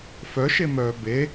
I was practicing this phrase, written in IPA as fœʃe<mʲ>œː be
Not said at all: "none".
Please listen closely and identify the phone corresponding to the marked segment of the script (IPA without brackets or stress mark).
m